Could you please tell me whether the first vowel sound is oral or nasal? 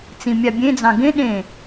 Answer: nasal